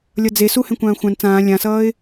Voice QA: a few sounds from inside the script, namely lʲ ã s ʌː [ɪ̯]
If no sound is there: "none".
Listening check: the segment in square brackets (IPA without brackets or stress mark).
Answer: ɪ̯